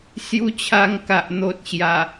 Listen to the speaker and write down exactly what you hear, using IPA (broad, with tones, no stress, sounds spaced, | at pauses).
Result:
s j u˧ t͡ɕʰ a˧ ŋ k a˨ ʔ n̪ o˨ t̚ ɕ j a˨˩